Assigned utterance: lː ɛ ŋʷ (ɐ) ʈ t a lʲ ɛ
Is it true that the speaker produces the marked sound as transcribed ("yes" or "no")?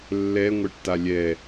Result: yes